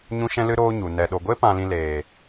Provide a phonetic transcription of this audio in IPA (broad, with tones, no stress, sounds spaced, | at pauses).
ɲ ũ˦ ʃ ɛ̃˦ l ɨ˦ ɾ oː˦ ɲ u˨ n ɛ˨ ɗ o˨ ɡʷ e˦ p ã˧ l ĩ˧ l eː˨